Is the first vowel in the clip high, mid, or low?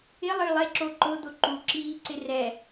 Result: high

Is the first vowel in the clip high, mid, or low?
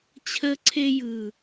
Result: mid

